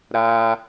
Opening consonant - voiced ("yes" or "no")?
yes